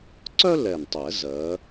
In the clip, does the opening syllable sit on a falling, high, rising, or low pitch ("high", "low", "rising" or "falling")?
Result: high